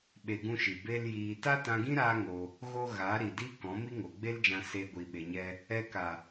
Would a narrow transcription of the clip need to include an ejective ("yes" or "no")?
no